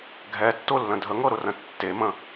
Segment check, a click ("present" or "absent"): absent